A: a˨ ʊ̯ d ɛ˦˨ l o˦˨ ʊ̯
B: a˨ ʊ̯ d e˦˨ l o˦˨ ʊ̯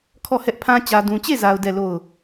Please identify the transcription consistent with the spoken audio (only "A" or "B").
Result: A